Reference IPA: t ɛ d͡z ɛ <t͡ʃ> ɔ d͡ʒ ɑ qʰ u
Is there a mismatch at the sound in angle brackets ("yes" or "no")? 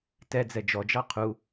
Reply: yes